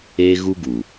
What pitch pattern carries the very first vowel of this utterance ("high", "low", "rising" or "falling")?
high